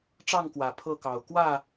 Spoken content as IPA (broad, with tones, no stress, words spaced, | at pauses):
ʈ͡ʂɑ˥˨ŋkwä˨˩ pʰɤ˥˨kɑ˨˩ʊ̯ kwä˥˨